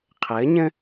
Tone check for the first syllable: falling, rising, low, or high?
rising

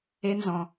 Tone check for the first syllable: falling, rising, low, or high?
high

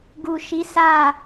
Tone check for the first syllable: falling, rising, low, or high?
low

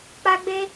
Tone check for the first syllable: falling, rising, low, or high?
high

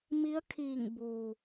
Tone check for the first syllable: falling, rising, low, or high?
rising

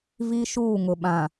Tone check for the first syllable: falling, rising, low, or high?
high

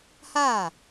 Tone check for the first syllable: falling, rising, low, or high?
falling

